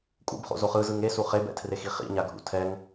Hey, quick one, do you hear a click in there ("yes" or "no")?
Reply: no